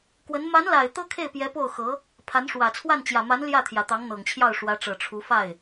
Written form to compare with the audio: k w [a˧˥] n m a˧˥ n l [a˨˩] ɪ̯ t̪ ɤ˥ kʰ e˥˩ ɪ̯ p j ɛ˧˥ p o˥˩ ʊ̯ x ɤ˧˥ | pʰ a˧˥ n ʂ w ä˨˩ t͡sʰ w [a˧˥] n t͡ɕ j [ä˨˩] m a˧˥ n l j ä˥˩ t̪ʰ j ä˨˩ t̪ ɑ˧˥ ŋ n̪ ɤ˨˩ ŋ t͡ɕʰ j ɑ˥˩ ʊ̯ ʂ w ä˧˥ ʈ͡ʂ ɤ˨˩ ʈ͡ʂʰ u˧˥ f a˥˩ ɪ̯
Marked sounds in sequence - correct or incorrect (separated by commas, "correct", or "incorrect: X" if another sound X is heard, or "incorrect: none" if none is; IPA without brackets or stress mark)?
incorrect: ə˧˥, correct, incorrect: a˥˩, correct